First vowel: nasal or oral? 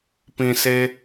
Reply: nasal